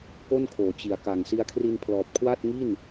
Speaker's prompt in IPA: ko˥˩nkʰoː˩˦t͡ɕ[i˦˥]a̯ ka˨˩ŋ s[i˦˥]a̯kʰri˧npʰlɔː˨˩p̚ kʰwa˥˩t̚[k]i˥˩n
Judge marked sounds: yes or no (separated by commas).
no, no, no